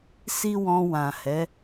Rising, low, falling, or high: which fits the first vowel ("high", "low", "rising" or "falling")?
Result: high